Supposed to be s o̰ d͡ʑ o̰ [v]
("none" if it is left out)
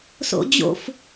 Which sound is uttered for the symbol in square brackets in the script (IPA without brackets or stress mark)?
f